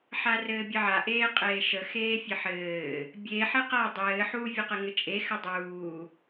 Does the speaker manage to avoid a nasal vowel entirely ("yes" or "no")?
yes